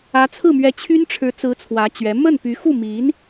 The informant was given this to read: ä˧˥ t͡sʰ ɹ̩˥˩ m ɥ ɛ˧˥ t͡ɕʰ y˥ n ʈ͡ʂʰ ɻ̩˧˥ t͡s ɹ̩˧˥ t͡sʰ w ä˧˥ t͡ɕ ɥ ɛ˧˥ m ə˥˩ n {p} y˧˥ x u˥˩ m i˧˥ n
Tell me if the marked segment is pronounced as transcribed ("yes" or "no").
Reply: yes